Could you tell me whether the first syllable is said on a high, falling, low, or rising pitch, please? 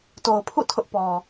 low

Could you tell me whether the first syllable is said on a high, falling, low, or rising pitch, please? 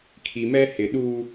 low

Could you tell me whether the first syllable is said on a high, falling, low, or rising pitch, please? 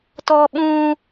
high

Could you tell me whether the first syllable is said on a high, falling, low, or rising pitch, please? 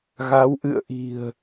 rising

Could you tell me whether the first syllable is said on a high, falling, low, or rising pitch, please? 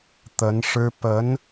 rising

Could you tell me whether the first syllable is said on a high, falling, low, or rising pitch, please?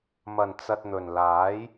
low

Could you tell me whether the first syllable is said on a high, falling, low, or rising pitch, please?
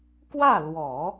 falling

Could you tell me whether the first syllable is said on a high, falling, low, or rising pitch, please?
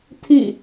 falling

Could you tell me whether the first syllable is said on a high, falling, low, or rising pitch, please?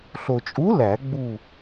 low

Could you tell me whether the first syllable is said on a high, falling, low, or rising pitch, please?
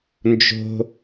high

